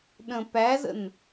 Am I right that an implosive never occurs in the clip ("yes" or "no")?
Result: no